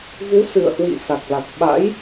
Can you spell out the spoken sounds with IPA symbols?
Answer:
v u˨˦ s ɨ̰˧˨ ə̯ h w ḭ˧˨ s a˨˩ k̚ l a˨˩ k̚ ɓ a̰˧˥ j

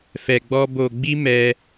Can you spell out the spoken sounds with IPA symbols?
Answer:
f ɛ˧ ɡ͡b ɔ˦ b o˧ ɡ͡b i˦ m ɛ˦

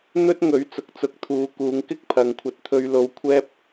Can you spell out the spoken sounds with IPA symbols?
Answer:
n̪ ɵ˥ t̚ ŋ ɵ˨˥ ɥ t͡s ʊ˨˥ k̚ t͡s ʊ˧ k̚ t̪ʰ uː˨˧ k uː˨˧ ŋ k ɪ˥ k̚ pʰ ɐ˨ ŋ kʷʰ ɐ˧ t̚ t̪ʰ ɵ˧ ɥ l o˨˧ w kʷʰ ɛː˥ p̚

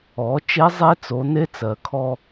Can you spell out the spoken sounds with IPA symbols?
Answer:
ɔ˩˧ t͡ʃ e˧˥ zˤ e˧˥ t͡s o˩˧ n e˧˥ t͡s ɜ˩ kʰ ɔ˧

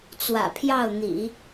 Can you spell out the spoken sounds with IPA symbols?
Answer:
t͡s w ä̰˨˩ pʰ j ɑ˥˩ ʊ̯ n̪ ḭ˨˩˦

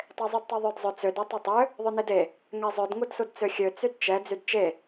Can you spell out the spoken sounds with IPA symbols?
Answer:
tˤ e zˤ y d tˤ ø ðˤ œ d zˤ ɵ t͡s ø d œ tˤ ɛ tˤ ø | ðˤ ɵ n e d e | ŋ ɛ zˤ œ d ŋ u d s u d t͡s ø xʲ ø t͡s y d t͡ʃ ɛ d͡z y d t͡ʃ e

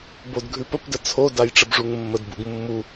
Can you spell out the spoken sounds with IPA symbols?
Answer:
b o d ɡʱ ʉ p ə p d ə t͡sʰ o d a j ʈ͡ʂ ə b ʐ u ŋ mː ə d b ṵ ɡ mː u

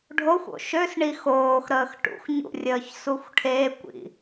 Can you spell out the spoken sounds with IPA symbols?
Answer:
ɖʱ o xʷ o̰ ʃ ø s ɳ i x oː x ɾ əː x ʈ ṵ x ɲ ṵ rʲ əː ç s u xʷ ʈʰ e kʷ ḭ

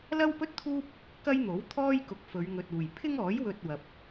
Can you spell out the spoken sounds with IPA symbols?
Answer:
l ɐ˥ w p ɵ˥ t̚ t̪ʰ uː˥ p̚ | k ɐ˥ j n̪ o˨˥ w t̪ʰ ɔː˥ j k ʊ˨ k̚ f ɵ˨˧ ɥ ŋ ɵ˨ t̚ uː˨˩ j pʰ ɪ˥ ŋ ɔː˨˥ j w ɵ˧ t̚ w ɐ˨ p̚

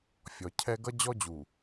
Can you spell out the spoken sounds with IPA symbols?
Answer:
fʲ ɔ˨ cʰ ɛ˦ ɡ ʌ˦ d͡ʑ ɔ˦ d͡ʑ u˨

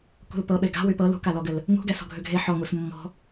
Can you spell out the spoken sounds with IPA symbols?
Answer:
k ṳ l p ɤ ɓ e ɡ a̤ w y p ɤ l ṳ k a l ɔ ɡ ɘ l | ŋ ṳ ɡ ɛ s ɔ̤ ɡʱ ʏ ɡʱ e ħ ɔ ŋ u s mː ɔ̤

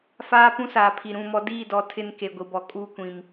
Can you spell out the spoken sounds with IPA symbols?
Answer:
f aː˦ p ũ˦ s aː˨ pʰ i˨ ɾ ũ˦˨ m ɔ˦ d iː˦˨ d ɔ˨˦ tʰ ɪ˦ n k e˨ ɡʷ i˨ b ɔ˨ kʼ uː˦ kʷ ĩ˨ m

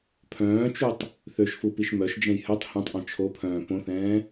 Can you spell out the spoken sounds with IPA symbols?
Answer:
pʰ œ̃ː t͡ʃ u tˤ | θ ø ʃ f u p i ʃ m œ ʃ d͡ʒ ɛ̃ j h œ tˤ h ɛ̃ tˤ ʔ ɔ̃ t͡ʃʰ o pʰ œ̃ː p õ θ ɛ̃ː

